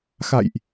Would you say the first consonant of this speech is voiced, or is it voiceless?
voiceless